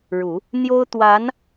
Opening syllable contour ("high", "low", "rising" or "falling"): low